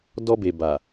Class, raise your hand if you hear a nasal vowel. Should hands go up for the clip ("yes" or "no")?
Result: no